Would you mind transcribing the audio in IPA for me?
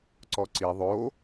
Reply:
ǀ ɔ ǀ i ðˤ o

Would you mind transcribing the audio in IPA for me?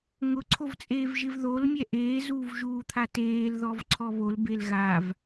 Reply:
ŋ ʊ ǀʰ o v t͡sʼ eː v ʒ ɪ v ð o l mʲ ɛ ʔ eː z uː v ʒ uː t̪ʰ a t eː l ð ɔ v ǀʰ ɔ β o l b e l ɣ a v

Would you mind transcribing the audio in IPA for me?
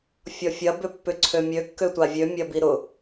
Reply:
fʲ ɔ fʲ ɐ b ʏ pː ʏ ǀʰ ø mʲ ø kː ø tʷ a vʲ ø mʲ ɐ b i ɾ ʊ

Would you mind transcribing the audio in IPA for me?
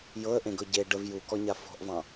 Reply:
j ɤ ə̯ ʔ ẽ ɡ ɤ ɟ e ɖ ə v j u k ɔ ɲ a f ɔ̤ ʔ v ɑ̃

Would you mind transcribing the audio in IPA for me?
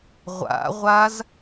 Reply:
ʁʷ a̰ ʁʷ a z

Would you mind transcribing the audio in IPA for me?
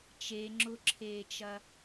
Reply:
t͡ʃ e ŋ͡ǁ ʊ ǁʰ eː t͡ʃ ɐ

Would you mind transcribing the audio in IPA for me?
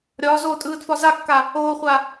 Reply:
ɾʲ ɒː z oː tʼ ɯː d f ɒ z a kː a | oː χʷ a

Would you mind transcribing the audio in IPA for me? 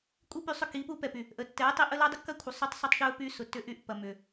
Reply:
kʷʼ i˦ p y˧ sˤ ʏ˦˨ k i˦ p u˦ p ɛ˨ p y˨ | ʔ ə˨ tː ɛ˨˦ ɪ̯ tˤ i˧ ʔ ə˦ l œ˦ dˤ ɪ˦ kː ɐ˦ kʷʰ ə˨ sˤ y˦ tˤ sˤ ɐ˦ tˤ ʃ ø˦ ʊ̯ p y˧ s ʊ˨ tː ʏ˦ ʔ y˦ ʔ p ɐ˨ m ʏ˨

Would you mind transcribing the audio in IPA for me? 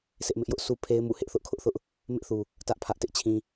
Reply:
sʰ ɪ˦ ʔ m ɪ˦ ʔ j ʊ˦ ʔ sʰ u˦ pʰ e˦ ɪ̯ m ṵ˦˨ h ɪ˦ ʔ θ ʊ˦ ʔ kʰ ʊ˦ ʔ θ ʊ˦ ʔ | m ɪ˦ ʔ θ u˨ | t ä˦ ʔ pʰ ä˦ ʔ t ɪ˦ ʔ t͡ɕʰ ĩ˦

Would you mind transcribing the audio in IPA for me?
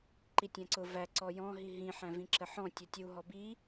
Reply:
ǃ i tʲ æ̃ ǀ ʊ v æ ǀ ɔ j ɔ̃ ɦ i ɦ ĩ ħ æ̃ v ĩ ǁ ə ħ ɔ̃ tʲ ɔ tʲ u ɦ ɔ b i

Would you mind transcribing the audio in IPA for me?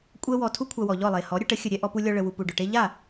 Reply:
kʷʼ ɛ˦ w ɔ˧ tʰ u˦ kʷʰ a˧ w ɔ˨ ʎ ɔ˦˨ lˠ e˨ h ɔ˨˦ ɾʲ ʊ˧ ʈ ə˨˦ xʲ ə˨ ɾʲ ɛ˧ ʔ ɔ˧ p u˧ lʲ ɔ˧ ɭ ə˨ w u˨ p u˨ ɖ ʊ˨ ʈ e˦ ʎ a˦˨

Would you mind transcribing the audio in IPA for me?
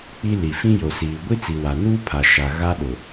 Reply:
k͡p i˦ l i˨ f ĩ˦ j o˨ s iː˨ ɡʷ i˦ t͡s i˨ w a˨ n uː˦ pʰ a˨ ʃ a˨ ɣ a˦ ɗ ʊ˨

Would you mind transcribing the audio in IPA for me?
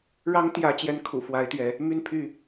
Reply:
ɻ ɑ˨˦ ŋ t̪ j ä˨˦ t͡ɕ j ɛ˨˦ n kʰ ṵ˨˩ f w a˨˦ ɪ̯ t̪ ɥ ɛ˨˦ | m y˥˨ n pʰ y˥˨

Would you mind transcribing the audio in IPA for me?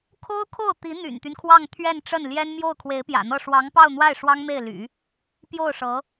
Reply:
kʰ o˥ ʊ̯ kʰ o˥˩ ʊ̯ t̪ i˧˥ n̪ y̰˨˩ n t̪ y˦ n kʰ w ɑ˥˧ ŋ t̪ʰ ɥ ɛ˥˧ n ʈ͡ʂ ə˥˩ n l j ɛ˥ n m j o˥˩ ʊ̯ kʰ w e˧˥ ɪ̯ p j ä̰˨˩ n̪ ɤ˥˩ ʂ w ɑ˧˥ ŋ p ɑ˥˧ ʊ̯ n̪ w a˥˩ ɪ̯ ʂ w ɑ˥ ŋ m e˥˩ ɪ̯ l y̰˨˩˦ | p j o˥˩ ʊ̯ ʂ ɤ˧˥

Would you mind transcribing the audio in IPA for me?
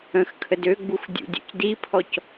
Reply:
ə̃ x kʰ ə d ø ɡ͡b u x dʲ ṵ dʲ ṵ c d i pʰ ɔ c

